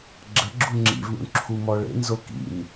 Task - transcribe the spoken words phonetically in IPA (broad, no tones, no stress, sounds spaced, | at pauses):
ɡ͡ǁ ə ɡ͡ǁ u ŋ͡ǁ ḭ v ɳ ṵ ɳ ǁʰ u m ɔ ɭ ḛ n z o k ḭ m